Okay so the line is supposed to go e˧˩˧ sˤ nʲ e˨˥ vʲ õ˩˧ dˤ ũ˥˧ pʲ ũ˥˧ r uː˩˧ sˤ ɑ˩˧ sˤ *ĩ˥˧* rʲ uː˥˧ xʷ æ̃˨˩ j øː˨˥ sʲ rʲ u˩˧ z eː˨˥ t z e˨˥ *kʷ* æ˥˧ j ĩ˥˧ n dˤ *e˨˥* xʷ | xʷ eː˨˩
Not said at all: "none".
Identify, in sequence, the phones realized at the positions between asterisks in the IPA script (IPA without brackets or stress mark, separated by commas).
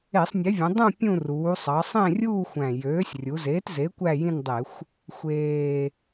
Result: ẽ˥˧, kʷ, e˧˩˧